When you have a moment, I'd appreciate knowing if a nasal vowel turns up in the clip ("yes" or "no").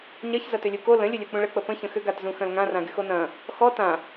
yes